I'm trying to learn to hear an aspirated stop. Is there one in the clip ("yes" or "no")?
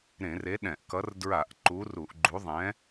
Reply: no